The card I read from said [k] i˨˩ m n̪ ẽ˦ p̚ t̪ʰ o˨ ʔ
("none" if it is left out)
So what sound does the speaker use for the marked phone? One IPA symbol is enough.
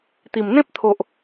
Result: t̪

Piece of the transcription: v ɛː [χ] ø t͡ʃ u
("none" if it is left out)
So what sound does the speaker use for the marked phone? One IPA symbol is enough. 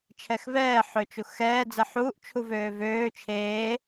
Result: ħ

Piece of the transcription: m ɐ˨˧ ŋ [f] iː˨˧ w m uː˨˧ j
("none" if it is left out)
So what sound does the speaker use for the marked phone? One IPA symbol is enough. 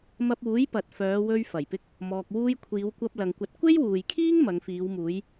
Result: f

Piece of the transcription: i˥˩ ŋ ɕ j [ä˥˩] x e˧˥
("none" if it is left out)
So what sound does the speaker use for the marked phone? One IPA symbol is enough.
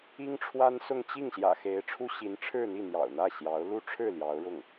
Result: ä̰˨˩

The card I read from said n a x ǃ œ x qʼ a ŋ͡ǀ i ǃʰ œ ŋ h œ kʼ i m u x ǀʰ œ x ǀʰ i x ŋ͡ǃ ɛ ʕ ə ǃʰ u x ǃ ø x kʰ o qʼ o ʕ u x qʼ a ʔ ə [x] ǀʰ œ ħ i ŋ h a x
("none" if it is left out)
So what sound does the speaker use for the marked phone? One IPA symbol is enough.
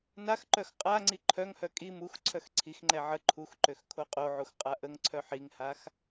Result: ŋ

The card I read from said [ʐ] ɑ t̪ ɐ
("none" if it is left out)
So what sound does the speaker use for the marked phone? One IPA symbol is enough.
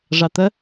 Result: ʐ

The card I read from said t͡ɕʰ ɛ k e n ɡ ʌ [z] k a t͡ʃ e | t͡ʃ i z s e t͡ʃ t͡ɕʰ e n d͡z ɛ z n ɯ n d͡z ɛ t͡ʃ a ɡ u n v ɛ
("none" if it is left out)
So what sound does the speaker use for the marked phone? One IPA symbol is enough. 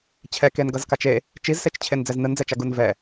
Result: z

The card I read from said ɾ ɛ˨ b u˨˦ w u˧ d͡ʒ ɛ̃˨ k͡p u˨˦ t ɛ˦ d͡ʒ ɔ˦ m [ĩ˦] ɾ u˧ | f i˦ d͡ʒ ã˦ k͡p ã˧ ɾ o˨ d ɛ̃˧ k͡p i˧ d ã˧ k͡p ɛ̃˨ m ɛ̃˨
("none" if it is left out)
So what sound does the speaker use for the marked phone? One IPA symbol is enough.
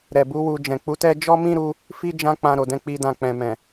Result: ĩ˦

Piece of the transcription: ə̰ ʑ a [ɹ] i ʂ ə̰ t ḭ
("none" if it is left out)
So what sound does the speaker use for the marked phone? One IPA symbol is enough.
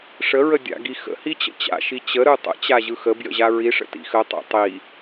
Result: ɹ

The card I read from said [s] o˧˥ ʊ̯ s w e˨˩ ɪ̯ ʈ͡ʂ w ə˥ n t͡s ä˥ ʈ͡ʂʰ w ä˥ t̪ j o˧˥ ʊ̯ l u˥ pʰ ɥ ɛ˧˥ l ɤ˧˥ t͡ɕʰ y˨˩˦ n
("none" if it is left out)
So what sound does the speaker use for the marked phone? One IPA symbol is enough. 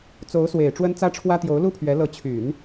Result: t͡s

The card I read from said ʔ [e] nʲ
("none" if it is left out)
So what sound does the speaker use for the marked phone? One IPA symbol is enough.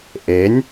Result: e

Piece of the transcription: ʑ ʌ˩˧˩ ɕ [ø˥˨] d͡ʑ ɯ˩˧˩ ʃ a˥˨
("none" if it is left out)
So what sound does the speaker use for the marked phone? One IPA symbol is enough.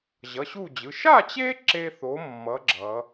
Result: u˥˨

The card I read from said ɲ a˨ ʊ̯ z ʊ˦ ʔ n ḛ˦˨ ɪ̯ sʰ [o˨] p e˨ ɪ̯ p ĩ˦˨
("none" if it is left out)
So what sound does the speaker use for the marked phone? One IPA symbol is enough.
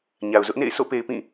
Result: o̰˦˨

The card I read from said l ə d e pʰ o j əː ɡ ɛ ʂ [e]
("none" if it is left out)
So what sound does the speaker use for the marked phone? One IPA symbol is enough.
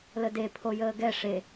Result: e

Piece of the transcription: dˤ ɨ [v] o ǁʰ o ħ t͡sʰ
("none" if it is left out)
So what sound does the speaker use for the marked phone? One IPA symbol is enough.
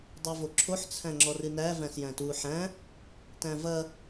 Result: v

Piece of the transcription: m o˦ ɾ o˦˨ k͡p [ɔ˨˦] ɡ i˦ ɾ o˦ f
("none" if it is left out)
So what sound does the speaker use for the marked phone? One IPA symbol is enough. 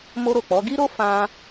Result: ɔ˨˦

